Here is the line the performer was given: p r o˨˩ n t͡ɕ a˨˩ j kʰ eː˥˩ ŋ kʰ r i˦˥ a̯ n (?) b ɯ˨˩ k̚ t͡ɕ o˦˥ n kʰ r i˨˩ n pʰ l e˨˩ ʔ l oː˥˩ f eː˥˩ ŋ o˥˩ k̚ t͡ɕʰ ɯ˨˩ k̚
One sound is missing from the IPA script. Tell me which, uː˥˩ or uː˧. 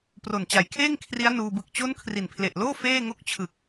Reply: uː˧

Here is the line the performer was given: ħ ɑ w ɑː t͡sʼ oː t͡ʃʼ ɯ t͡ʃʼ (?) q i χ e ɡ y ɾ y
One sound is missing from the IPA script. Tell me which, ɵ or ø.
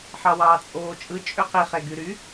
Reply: ø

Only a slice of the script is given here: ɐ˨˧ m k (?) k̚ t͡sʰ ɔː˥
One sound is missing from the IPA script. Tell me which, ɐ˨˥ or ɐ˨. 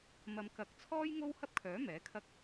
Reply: ɐ˨˥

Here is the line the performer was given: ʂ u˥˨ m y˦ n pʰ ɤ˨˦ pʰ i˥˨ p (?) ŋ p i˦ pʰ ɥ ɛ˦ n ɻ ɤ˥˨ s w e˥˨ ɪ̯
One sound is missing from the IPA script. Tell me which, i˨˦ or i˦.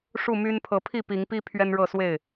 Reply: i˨˦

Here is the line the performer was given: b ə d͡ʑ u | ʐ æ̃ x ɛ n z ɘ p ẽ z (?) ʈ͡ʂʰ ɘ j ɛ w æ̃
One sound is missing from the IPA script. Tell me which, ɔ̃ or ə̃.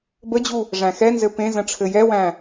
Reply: ə̃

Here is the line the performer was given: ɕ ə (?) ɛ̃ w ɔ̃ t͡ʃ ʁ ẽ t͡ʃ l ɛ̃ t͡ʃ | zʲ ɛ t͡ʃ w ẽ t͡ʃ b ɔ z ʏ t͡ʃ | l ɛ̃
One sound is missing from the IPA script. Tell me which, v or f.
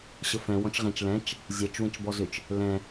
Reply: f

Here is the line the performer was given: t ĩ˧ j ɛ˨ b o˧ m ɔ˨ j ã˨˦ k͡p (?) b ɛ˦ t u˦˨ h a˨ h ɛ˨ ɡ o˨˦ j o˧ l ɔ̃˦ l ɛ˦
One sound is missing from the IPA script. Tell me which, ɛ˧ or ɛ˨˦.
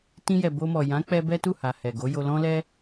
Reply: ɛ˧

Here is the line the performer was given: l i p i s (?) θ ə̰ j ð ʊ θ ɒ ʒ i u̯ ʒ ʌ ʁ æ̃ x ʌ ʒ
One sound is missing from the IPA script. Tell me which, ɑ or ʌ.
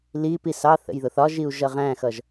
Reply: ɑ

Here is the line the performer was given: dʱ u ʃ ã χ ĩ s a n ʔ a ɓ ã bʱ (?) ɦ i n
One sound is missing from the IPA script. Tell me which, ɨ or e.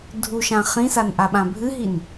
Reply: ɨ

